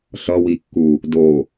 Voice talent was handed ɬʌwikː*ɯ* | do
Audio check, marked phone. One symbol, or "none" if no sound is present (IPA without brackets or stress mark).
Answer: u